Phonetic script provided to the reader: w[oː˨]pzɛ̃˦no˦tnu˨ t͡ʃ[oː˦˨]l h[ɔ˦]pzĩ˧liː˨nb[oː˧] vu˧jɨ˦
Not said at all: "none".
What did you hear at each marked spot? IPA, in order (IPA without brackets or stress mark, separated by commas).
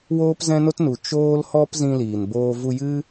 oː˦, oː˦, ɔ˦, oː˧